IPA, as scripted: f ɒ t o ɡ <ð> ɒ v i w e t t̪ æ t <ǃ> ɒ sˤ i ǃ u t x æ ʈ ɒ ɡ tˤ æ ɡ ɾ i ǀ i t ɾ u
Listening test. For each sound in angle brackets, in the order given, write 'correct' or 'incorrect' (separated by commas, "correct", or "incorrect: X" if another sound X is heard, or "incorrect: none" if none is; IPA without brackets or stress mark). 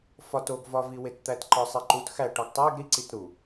incorrect: v, correct